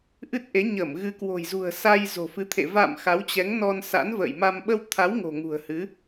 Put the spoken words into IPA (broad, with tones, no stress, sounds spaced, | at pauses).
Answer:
ʔ ɨ˦˥ t̚ ʔ e˨˦ ɲ ə˧˩ m ɣ ɨ˨˦ k w o̤˨˩ j z ṳ˨˩ ə̯ s a˧ j z o̤˨˩ f ɨ˨˦ t̪ʰ ḛ˧˨ v a̰˧˨ m x a˨˦ w t͡ɕ ɛ˨˦ ŋ n ɔ˧ n s a̰˧˥ n v ə̰ː˧˨ j m a˧ m ɓ ə˧ w t̪ʰ a˨˦ w ŋ o̤˨˩ ŋ ṳ˨˩ ə̯ h ɨ˨˦